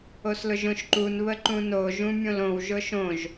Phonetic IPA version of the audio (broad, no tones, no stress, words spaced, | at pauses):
oslʊʒõʃǃun βəǃũno ʒũmʲõlõw ʒʊʃõʒ